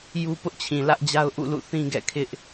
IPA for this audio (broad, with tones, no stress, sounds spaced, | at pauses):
j u˦ p ʊ˦ ʔ t͡ɕʰ ĩ˨ l ä˦ ʔ d͡ʑ a˦ ʊ̯ ʔ ṵ˦˨ l ṵ˦˨ θ ĩ˦ ɡ ɛ̰˦˨ kʰ ɪ˦ ʔ